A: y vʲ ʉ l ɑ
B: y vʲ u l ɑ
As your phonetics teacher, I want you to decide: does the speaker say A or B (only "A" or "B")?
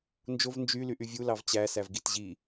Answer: B